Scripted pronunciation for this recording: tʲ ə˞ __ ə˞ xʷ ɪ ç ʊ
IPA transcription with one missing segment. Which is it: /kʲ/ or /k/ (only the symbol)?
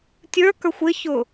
k